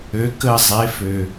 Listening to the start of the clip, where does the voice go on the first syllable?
rising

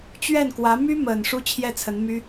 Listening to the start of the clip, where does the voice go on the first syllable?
falling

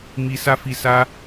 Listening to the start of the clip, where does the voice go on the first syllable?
low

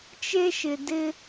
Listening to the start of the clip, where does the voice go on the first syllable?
high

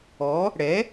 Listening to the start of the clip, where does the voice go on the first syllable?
rising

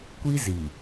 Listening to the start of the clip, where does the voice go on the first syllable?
high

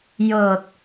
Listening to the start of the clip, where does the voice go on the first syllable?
low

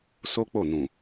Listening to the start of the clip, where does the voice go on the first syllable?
high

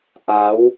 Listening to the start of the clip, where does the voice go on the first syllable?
rising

